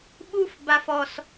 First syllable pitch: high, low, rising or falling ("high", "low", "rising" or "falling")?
high